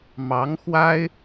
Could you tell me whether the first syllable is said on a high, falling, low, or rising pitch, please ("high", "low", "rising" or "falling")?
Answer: rising